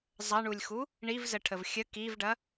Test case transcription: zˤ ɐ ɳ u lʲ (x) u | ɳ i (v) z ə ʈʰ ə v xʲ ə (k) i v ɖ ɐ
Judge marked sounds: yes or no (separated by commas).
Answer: yes, yes, yes